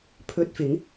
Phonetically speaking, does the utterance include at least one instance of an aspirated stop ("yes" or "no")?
yes